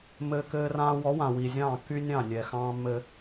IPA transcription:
m ɘː˦ k ɘː˦ r ãː˦ w ɔ˨˦ w ã˨ w i˨ zʲ ɑ̃ː˦˨ kː y˦ nʲ ɑ̃˦˨ nʲ ɛ˨ x ɑ̃ː˦ mː ɘ˦

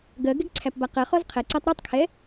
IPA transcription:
ɡ ɜ ɡ ɛ ɡ ǀʰ æ p b a q ɜ χ ɔ z qʰ ɛ ǀ æ tˤ ɾ ɛ tˤ kʰ ɛ

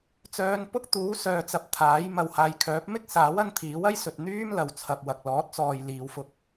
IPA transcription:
t͡s œː˨˧ n p ʊ˥ k̚ t̪ uː˨˥ s œː˧ t͡s ɐ˧ p̚ t̪ʰ aː˨˥ j m ɐ˨ w h aː˨ j kʰ œː˨˥ p̚ m ɪ˥ k̚ s aː˨˥ w ɐ˧ n t̪ʰ iː˨˥ w ɐ˥ j s ɵ˨ t̚ n̪ yː˥ m l ɐ˨ w t͡sʰ ɐ˨ p̚ w ɐ˨ k̚ l ɔː˨˥ t̚ t͡s ɔː˨ j l iː˨˧ w f ʊ˧ k̚

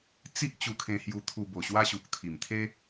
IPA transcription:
t͡s i˦ ʔ t͡ɕ u˧ kʰ ẽ˧ h j u˧ t̪ʰ u˧ b o˨˩ ɕ w a˦ ɕ u˨ k̚ t̪ʰ i˨˩ m t̪ʰ e˦

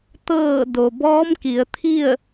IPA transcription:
t̪ ɤː˧˩ d o˩ b ɔː˧˥ m k i˩˧ ə̯ t̪ʰ i˥˨ ə̯

